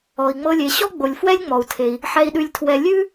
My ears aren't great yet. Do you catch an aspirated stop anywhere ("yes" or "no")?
yes